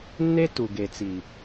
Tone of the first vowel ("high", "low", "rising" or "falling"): high